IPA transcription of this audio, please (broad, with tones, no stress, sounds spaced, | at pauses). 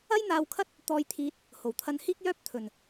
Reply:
ɐ˥ j n̪ aː˧ w kʰ ɐ˥ t̚ | t̪ ɔː˧ j t̪ʰ iː˧ t̚ | h o˨˩ w t̪ʰ ɐ˧ n h iː˥ k̚ j œː˥ p̚ t̪ʰ ɵ˨ n